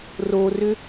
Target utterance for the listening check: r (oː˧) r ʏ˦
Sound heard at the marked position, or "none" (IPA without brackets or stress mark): oː˧